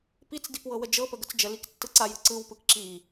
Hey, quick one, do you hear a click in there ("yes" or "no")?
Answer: yes